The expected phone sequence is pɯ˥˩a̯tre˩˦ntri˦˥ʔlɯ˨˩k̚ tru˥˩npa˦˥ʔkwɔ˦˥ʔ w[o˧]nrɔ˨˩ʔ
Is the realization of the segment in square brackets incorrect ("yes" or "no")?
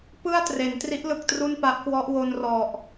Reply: no